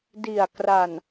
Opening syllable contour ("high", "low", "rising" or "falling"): low